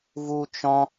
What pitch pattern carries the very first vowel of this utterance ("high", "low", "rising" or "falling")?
high